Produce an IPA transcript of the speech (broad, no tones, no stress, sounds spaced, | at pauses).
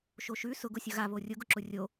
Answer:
ʃ o ʃ ʉ s ʊ ɡ ʊ sʲ ʊ ɣ a β o rʲ ʊ ɡ ʊ ǁ ʊ rʲ o